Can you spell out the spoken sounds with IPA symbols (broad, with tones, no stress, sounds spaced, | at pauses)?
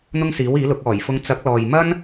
n̪ ʊ˥ ŋ s iː˨˥ w iː˨˥ l ʊ˨˥ k̚ ɔː˨˩ j f ʊ˧ ŋ t͡s ɐ˨˥ k̚ l ɔː˨ j m ɐ˥ n